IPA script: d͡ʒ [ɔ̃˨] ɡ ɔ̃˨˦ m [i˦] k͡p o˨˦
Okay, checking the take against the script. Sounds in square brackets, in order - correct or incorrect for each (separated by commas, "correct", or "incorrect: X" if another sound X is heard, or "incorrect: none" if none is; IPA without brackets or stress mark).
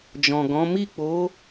correct, incorrect: i˦˨